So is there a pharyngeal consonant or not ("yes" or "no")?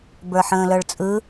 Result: yes